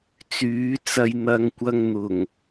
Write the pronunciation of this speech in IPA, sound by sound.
t͡syː˨˥t͡sɐ˧j n̪ɐ˨˧ŋkʷɐ˧ŋn̪ʊ˨˩ŋ

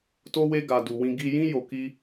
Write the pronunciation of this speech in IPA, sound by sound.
to˦we˦ɡa˧ du˧ wĩ˧ɡi˧jĩ˦ jo˧ki˦

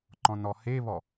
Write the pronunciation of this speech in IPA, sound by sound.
ǃɔ̃nɔheβɔ

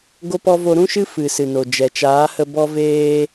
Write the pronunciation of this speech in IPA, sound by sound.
ɡo˦pɔ˦ vo˧ɾũ˦ʃɨ˦ fɨ˨ sɨ˨no˨d͡ʒɛ˨ t͡ʃaː˨˦hə˧ bɔ˧veː˧

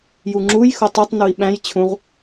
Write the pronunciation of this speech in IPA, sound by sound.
juŋ͡ǁuj xotˤitˤ nui̯ɓæ̃j t͡ɕʰũʁ

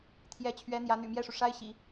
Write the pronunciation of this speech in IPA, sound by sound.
t̪ʰjɛ˧˥t͡ɕʰɥɛ˧˥ n̪jä˧˥n̪y̰˨˩mjɛ˥˩ʂu˩ ʂa˥ɪ̯ɕḭ˨˩˦

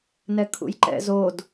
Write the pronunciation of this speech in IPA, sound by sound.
nɛkʰṵjǃɛ̰zod

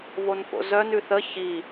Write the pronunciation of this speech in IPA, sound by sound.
vonfo̰zœn ʉθə çi

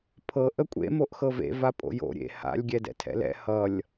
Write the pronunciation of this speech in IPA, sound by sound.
pʰɤ ʔəkʷʼḛ moʔxɤvḛ vapʼo̰jo̰ ɾʲḛ ha̰lʲ ɡʲɛdɛ̰tʰɛ̰lɛ̰ hʌlʲ

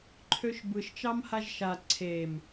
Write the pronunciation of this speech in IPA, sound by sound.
ǃʰøʃbɯʃ t͡ʃɑmhaʒʃa ǀʰem

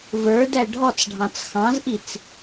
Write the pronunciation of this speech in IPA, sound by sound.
və˞dæ ɖʱɔt͡s ɖʱɑ̃t͡sxɑ̃zʔit͡s

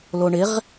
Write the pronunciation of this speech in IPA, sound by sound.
loɳɪʁ

